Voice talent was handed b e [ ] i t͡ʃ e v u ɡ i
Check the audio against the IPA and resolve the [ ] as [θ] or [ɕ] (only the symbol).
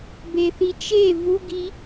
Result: θ